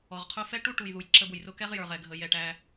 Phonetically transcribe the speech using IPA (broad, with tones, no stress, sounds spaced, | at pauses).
ɔ˨ ʁ qʰ ʊ˦ f ɛ˦ ʈ u˦ ʈ u˨ j ð u˨ j ǁ ə˦ b ʊ˨ j r ʊ˦ k ɛ˦ ʁ j ə˞˨ ʁ ɛ˨ ɡʱ ə˦˨ j ɛ˦˨ ʈ æ˦